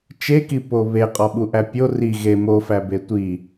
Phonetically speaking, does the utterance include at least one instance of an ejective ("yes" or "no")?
yes